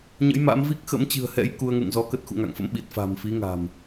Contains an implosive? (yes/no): yes